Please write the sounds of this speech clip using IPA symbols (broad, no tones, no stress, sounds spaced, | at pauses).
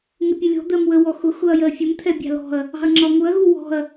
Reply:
ŋ ɪ pʲ ə lʲ ɔ̤ d̪ ɜ m w ə w ɔ x ʊ x ʊ ɐ̯ j ɜ fʲ ə m t̪ʰ ɛ bʲ ɑ̤ l ɔ̤ ɐ̯ | ɑ̤ ɐ̯ ŋ͡ǁ ɒ ŋ ʊ ɐ̯ ɣ u w ɔ̤ ɐ̯